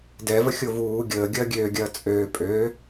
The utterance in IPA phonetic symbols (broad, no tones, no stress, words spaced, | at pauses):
dɛvəxʲo vuː ɡʲəːɡʲɐː ɡʲøːɡʲɐː t͡sʼøː pʼø